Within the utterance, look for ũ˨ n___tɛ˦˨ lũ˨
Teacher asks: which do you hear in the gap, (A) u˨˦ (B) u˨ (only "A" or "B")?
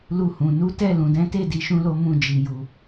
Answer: A